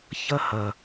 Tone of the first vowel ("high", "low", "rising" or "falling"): falling